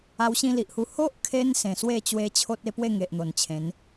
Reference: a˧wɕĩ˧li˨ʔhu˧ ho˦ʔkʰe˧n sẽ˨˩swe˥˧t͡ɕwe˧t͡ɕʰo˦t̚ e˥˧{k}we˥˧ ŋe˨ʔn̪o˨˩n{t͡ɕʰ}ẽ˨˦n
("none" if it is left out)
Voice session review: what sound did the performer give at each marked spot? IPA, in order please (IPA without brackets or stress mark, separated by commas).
p, t͡ɕʰ